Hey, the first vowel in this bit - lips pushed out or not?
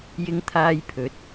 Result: no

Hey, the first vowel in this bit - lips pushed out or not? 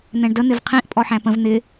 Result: no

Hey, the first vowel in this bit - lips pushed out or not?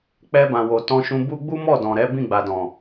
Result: no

